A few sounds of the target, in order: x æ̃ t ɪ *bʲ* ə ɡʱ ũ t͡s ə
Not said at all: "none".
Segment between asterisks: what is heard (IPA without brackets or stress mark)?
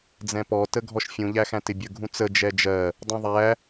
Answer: bʲ